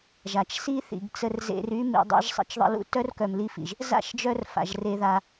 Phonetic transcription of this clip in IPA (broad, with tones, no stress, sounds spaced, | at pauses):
ʒ a˨ t͡ʃ s i˦ θ ḭ˨ ɡ t͡s ə˧ r z ḛ˧ r y˦ m ḭ˧ dˤ ḛ˦ ʒ sˤ ə̰˦ t͡ʃ ðˤ ə̰˧ l ṵ˦ t œ˦ r k œ˨ m l i˧ f ḭ˨ ʒ | z a̰˦˨ ʃ d͡ʒ œ˧ r f a̰˨ ʒ r e˧ ð a˧